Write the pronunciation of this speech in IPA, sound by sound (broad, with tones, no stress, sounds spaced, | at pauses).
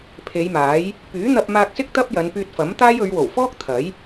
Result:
pʰ e˨˧ j m aː˨˥ j | p yː˨˥ n̪ ɐ˧ p̚ m aː˧ k̚ s ɪ˥ k̚ t̪ ɐ˥ p̚ j ɐ˨˧ n p yː˧ t̚ f ɐ˨˥ m t̪ aː˥ j ɵ˨˧ ɥ w o˨˩ w f ɔː˥ k̚ t̪ʰ ɐ˨˥ j